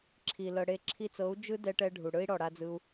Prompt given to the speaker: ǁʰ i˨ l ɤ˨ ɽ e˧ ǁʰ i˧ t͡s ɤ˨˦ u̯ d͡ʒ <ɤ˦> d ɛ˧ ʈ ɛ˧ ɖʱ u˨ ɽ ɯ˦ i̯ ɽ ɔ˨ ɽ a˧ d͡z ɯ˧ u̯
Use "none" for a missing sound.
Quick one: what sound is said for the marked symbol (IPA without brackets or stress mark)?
ɯ˦